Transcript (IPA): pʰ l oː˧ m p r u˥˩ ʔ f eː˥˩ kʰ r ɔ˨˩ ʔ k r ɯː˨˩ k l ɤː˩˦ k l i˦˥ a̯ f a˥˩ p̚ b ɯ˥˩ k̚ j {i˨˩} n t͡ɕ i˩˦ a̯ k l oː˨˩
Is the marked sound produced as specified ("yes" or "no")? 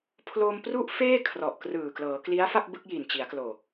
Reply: yes